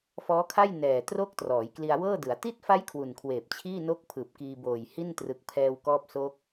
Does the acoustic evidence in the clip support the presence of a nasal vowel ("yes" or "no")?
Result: no